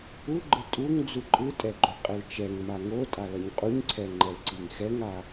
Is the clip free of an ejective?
no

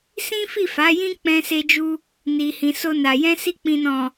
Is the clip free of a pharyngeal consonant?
yes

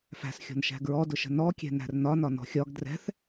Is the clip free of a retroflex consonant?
yes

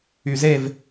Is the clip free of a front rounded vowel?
no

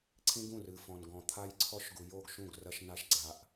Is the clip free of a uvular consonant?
yes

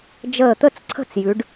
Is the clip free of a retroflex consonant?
no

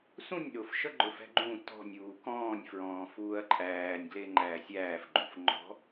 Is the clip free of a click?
no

